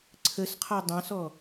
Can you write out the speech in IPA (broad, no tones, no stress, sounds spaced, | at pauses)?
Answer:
ǀʰ ə s qʰ ɔ dˤ ɑ̃ s ɔ